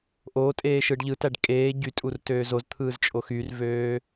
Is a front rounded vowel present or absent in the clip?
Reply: present